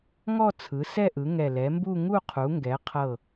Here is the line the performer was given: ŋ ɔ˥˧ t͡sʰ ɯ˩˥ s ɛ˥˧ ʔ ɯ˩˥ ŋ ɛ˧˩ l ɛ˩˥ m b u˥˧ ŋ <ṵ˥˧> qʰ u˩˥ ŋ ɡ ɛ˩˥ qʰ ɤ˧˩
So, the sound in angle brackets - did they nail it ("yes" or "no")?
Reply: no